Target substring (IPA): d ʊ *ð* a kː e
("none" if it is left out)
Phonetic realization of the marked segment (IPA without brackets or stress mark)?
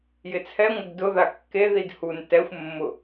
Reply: ð